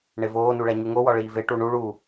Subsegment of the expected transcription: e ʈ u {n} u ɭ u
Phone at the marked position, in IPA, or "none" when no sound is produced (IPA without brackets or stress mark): ɳ